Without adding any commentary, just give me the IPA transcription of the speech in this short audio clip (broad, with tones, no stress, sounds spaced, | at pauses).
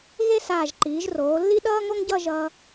ɣ e˥˧ s aː˧˩ ʒ ǃ iː˩˧ ʒ r oː˩˧ lː i˥ ɗ ʌː˥ ŋ o˥ ŋ ɟ ʌ˥˧ ʒ ʌː˧